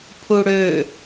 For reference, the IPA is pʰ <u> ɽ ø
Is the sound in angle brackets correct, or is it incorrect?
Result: correct